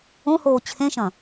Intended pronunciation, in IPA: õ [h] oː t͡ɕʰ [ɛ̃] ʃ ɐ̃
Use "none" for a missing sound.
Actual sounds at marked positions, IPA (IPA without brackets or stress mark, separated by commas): h, ẽ